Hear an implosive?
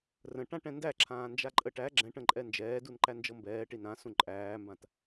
no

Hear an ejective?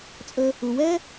yes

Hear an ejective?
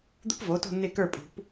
yes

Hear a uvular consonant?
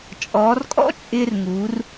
no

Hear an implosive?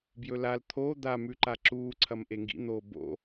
no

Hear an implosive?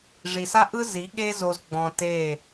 yes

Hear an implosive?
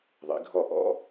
no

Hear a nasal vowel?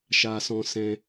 yes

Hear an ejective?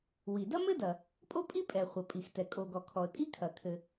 yes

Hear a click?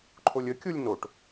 yes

